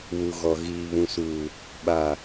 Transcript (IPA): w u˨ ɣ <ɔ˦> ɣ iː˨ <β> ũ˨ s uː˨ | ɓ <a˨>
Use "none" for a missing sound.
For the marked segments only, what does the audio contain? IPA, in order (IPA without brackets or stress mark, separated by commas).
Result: ɔ˨, β, a˨